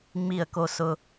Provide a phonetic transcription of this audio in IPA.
ŋ͡m i˦˨ ə̯ k o˦ s ʊ˧

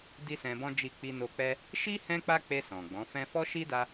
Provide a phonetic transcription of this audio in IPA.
d i˦ s ɛ̃˧ b ɔ̃˦ d͡ʒ i˦˨ k͡p i˧ n o˧ k͡p ɛ˦ | ʃ i˦ h ɛ̃˦ k͡p a˦ k͡p e˧ s ɔ̃˨ ɡ͡b ɔ̃˨˦ f ɛ̃˦ f ɔ˦ ʃ i˦ d a˧

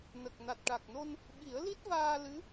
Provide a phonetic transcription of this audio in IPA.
n ə˨˩ k̚ n a˨˩ t̚ ʈ a˨˩ k̚ n o˧ n | ɓ i˨˩˦ ə̯ l i˦˥ t̚ v aː˧ l ɨ˧˥

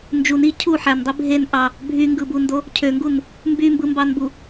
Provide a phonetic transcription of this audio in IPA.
n d͡ʒ u n i cʰ u ħ æ n dˤ i bʱ e n ʔ ɑ | bʱ y ŋ ɡ ɯ b u n d o | cʰ ø ŋ ɡ u n | m b y m b ɯ m b ɑ n b u

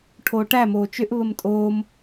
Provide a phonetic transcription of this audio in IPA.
ʈʰ oː ʈ æ m oː t͡ʃ ʏ ʔ β ə m tʼ oː m

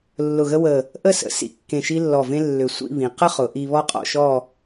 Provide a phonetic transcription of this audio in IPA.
lː ʊ˧˩ ɣ ə˥ w ə˧˩ | ʔ ə˥˧ s ə̰˩˧ s ḭ˧˩ kː ẽ˧˩ ʃ i˥ lː ɔ˧˩ v ẽ˥ lː ʏ˧˩ sʷ ḭ˥˧ β ĩ˩˧ q ə˥ χ ʊ˩˧ ʔ i˧ β ɔ˥ qʼ ɔ̰˥˧ ʃ ɔ˥˧

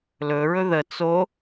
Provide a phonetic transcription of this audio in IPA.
l ɵ ɹ ɵ ð ə t͡s o

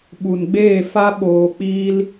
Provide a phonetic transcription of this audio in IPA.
ɓ u˨ n ɡ͡b eː˦˨ f a˦ ɓ oː˧ k͡p iː˦ l

